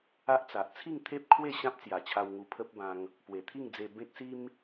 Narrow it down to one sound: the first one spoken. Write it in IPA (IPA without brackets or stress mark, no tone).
a